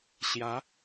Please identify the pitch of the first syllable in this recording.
rising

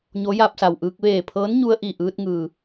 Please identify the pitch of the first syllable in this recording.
rising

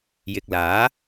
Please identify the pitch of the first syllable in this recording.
low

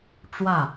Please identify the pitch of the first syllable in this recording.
falling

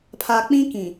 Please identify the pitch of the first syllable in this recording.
low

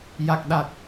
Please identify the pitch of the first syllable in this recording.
low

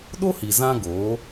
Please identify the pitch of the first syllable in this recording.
high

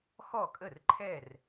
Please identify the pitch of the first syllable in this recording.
falling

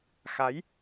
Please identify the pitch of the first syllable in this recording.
rising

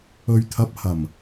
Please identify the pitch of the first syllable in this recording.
low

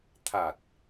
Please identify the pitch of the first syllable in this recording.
low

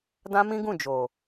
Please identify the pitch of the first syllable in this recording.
high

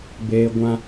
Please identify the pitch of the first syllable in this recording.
high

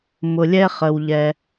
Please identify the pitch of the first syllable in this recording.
low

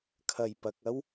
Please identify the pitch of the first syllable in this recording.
low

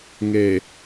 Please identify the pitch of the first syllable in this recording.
low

